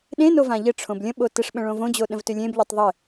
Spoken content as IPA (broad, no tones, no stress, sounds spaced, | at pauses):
ɗ ẽ n o v ã ʎ ɘ ʈ͡ʂʰ õ b lʲ ə̃ ɓ o t ɘ ʂ ɓ ə̃ ɭ õ v õ d͡ʑ o ɗ ə̃ v t ʏ lʲ ẽ b ʎ o tˤ ðˤ ɘ